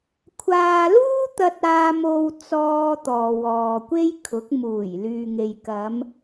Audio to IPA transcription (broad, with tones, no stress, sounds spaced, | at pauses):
kʷʰ aː˧ l uː˥ t̪ ɐ˧ t̚ aː˧ m o˧ w t͡s ɔː˧ t̪ ɔː˨ w ɔː˨ kʷ e˥ j kʰ ʊ˨˥ k̚ m uː˨˩ j l yː˨ ŋ e˨ j k ɐ˨˧ m